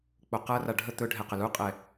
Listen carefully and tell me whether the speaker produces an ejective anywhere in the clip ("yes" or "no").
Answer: yes